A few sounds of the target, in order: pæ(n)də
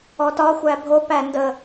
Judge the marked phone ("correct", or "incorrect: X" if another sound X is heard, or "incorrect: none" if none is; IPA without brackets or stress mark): correct